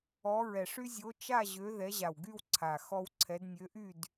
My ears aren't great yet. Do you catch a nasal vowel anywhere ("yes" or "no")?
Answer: no